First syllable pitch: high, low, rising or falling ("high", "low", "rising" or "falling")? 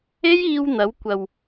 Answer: high